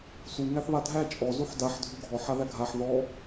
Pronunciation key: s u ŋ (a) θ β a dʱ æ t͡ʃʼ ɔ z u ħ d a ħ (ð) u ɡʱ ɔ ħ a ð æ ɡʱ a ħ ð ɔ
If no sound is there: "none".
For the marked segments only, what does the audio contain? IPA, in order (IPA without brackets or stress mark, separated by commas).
æ, dʱ